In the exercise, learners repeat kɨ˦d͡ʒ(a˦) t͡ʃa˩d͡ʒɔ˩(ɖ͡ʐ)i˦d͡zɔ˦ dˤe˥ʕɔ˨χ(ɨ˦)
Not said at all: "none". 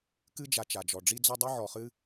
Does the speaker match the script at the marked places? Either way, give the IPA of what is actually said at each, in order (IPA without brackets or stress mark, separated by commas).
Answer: a˨, ɖ͡ʐ, ɨ˦